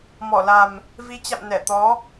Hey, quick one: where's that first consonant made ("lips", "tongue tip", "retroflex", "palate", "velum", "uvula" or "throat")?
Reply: lips